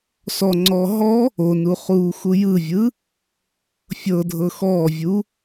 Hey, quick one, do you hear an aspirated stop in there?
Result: no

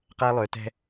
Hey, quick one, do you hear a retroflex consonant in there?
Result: no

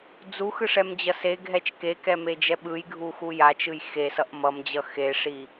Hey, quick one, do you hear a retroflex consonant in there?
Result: yes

